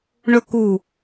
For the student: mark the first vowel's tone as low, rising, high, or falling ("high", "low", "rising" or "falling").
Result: high